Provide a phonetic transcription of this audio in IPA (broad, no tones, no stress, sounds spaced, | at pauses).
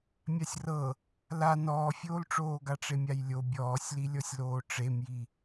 mʲ a sʲ r ɤ | l a n ɔː fʲ oː l ʈ͡ʂ oː ɡ a ʈ͡ʂ e mʲ a j lʲ o bʲ ɔː sʲ l i lʲ ɔ sʲ l oː ʈ͡ʂ e m j i